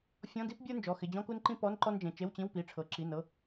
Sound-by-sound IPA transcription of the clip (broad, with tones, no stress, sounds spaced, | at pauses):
fʲ ɔ̃˧˥˧ d i˥ p bʲ ə˞˥ n d͡ʒ ɔ˩˧˩ x ɪ˩˧˩ d͡ʑ ɔ̃˥ k u˥ n ǃ ĩ˥ p ɔ˧˥˧ n ǃ ɔ˥ n d͡ʒ ẽ˩˧˩ t͡ʃ e˧˥˧ w t͡ɕ ĩ˧˥˧ w p i˩˧˩ ʈ͡ʂʰ ɤ˩˧˩ ǁ i˩˧˩ n ɤ˩˧˩